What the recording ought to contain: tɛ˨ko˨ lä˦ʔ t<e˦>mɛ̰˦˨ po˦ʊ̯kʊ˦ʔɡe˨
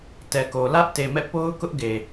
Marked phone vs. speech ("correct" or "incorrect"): incorrect